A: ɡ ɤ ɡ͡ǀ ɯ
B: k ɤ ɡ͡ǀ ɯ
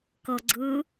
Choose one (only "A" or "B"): B